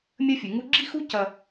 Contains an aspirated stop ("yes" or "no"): no